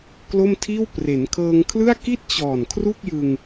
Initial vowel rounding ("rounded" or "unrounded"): rounded